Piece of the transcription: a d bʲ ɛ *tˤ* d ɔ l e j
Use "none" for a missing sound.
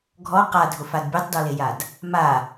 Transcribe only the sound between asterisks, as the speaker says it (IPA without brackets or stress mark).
tˤ